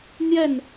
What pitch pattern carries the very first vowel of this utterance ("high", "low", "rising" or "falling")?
falling